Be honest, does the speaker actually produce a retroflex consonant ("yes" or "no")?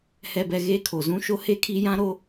no